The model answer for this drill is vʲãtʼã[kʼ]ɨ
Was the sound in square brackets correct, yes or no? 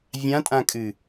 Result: yes